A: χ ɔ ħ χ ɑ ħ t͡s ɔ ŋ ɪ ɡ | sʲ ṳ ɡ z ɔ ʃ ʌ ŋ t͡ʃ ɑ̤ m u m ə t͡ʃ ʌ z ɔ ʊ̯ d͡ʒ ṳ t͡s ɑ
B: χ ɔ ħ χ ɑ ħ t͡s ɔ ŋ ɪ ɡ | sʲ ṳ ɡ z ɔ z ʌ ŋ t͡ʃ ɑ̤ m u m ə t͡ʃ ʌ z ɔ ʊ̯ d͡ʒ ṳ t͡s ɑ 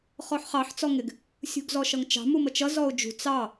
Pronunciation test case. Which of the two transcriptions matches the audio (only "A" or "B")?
A